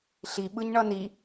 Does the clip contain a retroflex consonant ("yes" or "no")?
yes